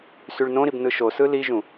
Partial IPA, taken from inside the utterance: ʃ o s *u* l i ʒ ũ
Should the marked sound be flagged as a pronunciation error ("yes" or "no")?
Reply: yes